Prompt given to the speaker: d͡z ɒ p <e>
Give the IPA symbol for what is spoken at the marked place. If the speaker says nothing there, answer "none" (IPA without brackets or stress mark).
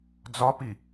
i